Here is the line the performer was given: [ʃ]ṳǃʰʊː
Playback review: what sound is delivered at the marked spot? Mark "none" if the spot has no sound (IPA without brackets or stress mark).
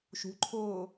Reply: ʃ